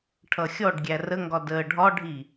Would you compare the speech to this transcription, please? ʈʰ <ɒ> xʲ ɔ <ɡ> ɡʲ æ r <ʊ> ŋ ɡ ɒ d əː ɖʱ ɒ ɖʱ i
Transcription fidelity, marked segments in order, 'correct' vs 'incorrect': incorrect: ʌ, incorrect: ɖ, incorrect: ə

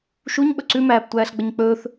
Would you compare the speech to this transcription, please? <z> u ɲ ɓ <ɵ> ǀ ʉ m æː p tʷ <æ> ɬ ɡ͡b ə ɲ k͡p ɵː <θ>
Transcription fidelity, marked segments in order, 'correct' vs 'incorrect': incorrect: ʃ, correct, incorrect: æː, correct

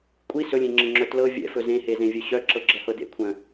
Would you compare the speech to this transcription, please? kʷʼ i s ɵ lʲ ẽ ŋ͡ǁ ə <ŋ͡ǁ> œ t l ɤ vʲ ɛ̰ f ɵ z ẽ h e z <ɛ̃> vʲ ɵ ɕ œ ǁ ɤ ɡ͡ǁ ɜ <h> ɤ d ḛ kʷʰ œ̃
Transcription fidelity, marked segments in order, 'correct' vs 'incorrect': correct, incorrect: ẽ, correct

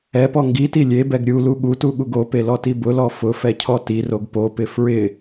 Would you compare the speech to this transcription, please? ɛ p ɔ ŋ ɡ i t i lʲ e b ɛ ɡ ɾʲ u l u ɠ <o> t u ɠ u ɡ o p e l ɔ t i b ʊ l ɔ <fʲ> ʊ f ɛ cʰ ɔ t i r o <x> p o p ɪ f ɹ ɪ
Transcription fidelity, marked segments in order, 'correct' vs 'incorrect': incorrect: u, incorrect: f, incorrect: ɡ

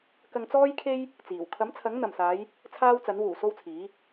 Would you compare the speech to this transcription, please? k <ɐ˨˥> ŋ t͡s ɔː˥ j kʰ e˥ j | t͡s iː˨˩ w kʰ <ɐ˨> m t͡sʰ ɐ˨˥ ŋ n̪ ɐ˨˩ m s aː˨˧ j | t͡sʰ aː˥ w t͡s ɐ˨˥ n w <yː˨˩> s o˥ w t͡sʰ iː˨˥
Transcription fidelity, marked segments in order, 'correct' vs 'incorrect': incorrect: ɐ˧, incorrect: ɐ˨˥, incorrect: uː˨˩

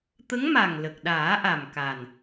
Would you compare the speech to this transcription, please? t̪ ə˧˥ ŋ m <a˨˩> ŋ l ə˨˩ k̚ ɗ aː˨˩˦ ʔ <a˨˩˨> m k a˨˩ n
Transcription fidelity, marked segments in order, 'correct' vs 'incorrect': correct, incorrect: a˨˩

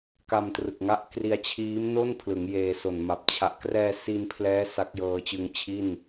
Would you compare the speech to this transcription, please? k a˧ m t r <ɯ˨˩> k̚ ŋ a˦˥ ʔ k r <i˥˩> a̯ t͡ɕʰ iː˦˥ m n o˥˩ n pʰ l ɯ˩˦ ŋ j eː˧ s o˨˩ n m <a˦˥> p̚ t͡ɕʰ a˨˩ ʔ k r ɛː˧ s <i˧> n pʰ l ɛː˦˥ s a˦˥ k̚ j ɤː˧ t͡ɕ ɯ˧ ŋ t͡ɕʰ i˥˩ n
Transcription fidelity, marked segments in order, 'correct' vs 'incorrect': correct, incorrect: i˧, incorrect: a˨˩, correct

